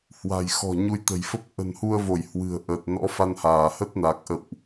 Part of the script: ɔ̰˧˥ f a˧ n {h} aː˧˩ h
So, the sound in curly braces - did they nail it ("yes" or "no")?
yes